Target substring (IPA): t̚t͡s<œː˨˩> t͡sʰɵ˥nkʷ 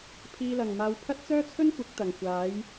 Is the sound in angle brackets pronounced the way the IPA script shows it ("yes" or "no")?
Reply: no